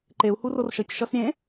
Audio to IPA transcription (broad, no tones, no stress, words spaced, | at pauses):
ǃeu̯ hurorʃʌc ʃʌsɾʲẽ